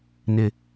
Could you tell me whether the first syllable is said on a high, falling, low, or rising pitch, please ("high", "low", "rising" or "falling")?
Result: low